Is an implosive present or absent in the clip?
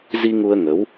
absent